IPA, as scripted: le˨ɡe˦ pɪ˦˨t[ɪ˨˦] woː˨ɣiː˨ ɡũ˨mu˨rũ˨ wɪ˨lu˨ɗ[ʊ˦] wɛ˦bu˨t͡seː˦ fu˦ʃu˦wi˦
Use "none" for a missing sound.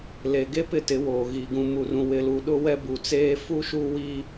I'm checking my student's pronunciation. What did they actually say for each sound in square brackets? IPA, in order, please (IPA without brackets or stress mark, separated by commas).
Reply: ɪ˨˦, ʊ˦